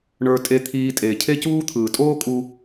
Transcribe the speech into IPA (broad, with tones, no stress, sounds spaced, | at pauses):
ɳ ə˞˧ tʼ e˧ t̪ʰ iː˧ tʼ e˩ cʰ e˥ c uː˥ t̪ʰ ɯː˩ tʼ oː˥ kʼ u˧